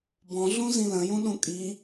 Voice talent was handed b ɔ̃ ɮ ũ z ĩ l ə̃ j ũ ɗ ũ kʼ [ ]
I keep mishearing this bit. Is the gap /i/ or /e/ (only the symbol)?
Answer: i